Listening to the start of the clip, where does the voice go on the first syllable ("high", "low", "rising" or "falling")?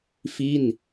falling